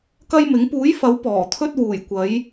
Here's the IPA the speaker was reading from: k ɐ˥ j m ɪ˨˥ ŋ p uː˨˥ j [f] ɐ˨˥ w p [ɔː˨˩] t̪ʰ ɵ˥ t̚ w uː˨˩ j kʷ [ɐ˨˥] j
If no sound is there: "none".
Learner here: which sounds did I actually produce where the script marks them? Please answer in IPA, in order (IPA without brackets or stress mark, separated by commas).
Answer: f, ɔː˨˩, ɐ˨˥